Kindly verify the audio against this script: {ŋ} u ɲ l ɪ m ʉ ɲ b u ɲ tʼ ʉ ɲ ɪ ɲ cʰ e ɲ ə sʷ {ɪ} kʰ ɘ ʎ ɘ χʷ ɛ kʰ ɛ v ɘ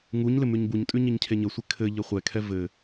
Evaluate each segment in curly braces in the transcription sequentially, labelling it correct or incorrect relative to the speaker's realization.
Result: correct, correct

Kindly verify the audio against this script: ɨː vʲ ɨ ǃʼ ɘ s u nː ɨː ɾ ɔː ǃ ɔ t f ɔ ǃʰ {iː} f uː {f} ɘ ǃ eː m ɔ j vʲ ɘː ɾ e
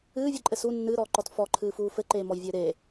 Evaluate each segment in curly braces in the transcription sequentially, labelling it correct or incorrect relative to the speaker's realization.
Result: incorrect, correct

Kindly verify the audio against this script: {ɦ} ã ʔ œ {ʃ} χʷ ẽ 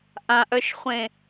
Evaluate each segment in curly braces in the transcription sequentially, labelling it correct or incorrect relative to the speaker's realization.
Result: incorrect, correct

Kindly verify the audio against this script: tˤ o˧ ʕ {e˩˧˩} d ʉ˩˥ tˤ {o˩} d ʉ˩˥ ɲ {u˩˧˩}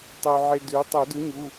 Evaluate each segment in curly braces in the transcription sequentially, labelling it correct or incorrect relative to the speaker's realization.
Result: incorrect, incorrect, correct

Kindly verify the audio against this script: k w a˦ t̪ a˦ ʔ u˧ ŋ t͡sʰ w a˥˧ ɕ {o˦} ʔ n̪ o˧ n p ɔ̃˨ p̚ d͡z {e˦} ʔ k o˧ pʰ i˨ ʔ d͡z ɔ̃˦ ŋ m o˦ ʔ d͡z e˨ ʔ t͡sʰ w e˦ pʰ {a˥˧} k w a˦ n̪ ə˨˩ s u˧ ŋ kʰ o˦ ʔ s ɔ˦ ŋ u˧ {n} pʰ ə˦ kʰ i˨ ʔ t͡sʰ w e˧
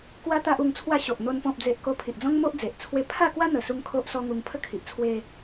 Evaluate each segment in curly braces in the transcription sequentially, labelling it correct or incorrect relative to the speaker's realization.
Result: incorrect, incorrect, correct, incorrect

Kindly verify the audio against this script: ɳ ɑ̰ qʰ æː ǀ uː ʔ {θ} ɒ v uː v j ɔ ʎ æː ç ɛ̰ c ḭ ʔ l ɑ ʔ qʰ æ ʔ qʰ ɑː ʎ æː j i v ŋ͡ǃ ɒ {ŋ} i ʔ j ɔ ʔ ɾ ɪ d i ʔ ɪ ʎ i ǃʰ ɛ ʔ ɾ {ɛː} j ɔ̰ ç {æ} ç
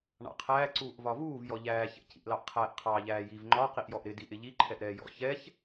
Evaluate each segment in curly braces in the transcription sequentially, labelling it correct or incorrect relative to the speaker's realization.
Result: incorrect, incorrect, correct, incorrect

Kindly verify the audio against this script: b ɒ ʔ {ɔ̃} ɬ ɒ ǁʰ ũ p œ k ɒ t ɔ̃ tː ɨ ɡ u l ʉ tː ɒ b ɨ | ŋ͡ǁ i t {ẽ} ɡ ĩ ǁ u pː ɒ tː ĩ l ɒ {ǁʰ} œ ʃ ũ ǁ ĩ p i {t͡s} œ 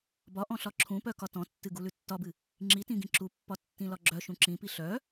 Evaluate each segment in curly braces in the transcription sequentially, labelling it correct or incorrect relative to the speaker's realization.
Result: correct, incorrect, incorrect, incorrect

